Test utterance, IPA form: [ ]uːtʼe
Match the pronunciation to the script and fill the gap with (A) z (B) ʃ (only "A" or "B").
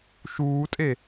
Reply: B